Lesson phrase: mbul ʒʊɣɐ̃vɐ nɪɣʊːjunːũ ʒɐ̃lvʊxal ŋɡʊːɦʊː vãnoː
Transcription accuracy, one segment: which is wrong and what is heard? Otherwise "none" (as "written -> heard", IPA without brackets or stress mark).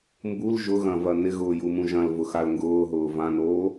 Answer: nː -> m